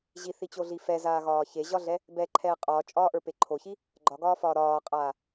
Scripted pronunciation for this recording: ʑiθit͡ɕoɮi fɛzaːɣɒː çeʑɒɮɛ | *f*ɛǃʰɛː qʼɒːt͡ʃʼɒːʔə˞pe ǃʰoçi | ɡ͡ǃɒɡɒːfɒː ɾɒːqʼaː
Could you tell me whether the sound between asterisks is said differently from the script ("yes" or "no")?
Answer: yes